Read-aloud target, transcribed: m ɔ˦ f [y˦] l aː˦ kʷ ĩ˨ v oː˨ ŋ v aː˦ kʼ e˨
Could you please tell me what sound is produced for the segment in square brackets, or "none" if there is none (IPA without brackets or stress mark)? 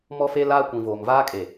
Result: e˦